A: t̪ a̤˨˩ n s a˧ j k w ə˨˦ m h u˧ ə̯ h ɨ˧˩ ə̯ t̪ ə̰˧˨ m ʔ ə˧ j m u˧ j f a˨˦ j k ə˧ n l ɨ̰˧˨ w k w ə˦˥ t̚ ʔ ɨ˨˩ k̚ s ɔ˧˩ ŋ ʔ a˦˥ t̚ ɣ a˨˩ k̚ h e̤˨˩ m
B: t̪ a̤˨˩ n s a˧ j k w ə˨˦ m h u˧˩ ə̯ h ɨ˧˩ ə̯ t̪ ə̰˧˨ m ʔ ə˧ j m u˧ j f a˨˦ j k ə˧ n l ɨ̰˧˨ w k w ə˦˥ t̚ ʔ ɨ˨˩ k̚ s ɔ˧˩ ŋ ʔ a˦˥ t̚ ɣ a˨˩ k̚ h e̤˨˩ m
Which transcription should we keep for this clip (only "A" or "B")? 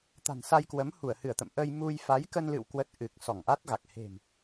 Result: B